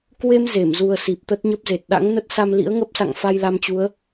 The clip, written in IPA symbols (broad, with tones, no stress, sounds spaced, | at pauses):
k w e˧ m z e˧˩ m z u˨˩ ə̯ s i˨˩ p̚ t̪ ə˦˥ t̚ ɲ ə˦˥ p̚ z e˨˩ t̚ ɗ a̰˧˥ ŋ n ə˦˥ t̚ s a˧ m l ḭ˧˥ ə̯ ŋ ə˦˥ p̚ s a̰˧˨ ŋ f a˧ j l a˧ m t͡ɕ u˨˦ ə̯